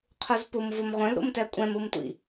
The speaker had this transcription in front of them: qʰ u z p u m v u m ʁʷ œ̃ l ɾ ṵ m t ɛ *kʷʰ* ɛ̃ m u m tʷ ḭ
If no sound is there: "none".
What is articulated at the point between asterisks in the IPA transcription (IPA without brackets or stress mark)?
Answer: kʷʼ